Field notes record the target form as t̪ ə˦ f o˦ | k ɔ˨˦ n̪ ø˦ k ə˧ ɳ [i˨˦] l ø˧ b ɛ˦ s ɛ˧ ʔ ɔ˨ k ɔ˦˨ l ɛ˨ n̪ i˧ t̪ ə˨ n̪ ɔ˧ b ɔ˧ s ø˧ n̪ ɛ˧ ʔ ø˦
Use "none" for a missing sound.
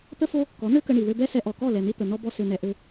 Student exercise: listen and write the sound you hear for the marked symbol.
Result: i˨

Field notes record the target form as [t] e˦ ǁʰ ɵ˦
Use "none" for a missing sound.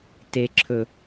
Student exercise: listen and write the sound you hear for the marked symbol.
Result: t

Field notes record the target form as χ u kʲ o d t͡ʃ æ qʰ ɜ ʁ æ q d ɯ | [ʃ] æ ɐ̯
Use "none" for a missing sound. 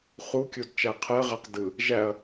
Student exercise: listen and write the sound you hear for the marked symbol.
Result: ʒ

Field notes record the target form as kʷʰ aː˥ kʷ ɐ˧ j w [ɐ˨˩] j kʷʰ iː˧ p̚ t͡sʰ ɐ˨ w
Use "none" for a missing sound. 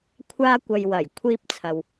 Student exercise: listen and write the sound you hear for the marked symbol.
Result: ɐ˨˩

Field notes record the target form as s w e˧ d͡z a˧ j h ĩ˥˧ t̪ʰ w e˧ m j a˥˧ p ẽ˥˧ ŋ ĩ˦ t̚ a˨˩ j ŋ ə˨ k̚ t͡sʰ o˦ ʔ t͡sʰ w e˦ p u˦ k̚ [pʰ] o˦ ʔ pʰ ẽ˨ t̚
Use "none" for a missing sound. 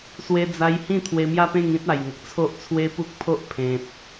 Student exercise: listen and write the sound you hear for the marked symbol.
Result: pʰ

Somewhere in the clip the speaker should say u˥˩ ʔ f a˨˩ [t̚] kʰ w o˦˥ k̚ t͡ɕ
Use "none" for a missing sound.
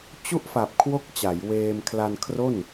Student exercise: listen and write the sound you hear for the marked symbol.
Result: p̚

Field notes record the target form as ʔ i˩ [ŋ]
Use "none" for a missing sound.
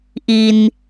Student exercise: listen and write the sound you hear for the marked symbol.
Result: n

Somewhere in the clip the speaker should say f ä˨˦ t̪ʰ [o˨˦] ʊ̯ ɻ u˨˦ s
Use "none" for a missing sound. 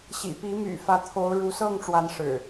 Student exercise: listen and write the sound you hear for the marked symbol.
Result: o˨˦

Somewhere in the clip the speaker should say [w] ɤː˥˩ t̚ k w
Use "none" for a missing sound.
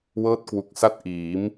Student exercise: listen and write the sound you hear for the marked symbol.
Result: w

